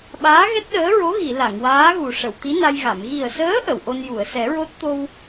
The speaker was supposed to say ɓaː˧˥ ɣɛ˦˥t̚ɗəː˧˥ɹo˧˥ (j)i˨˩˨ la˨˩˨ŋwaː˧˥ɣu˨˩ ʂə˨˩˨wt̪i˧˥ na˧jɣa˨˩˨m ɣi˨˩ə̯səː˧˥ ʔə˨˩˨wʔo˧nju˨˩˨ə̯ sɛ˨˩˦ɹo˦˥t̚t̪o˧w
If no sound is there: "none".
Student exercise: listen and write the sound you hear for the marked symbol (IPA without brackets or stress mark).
ɣ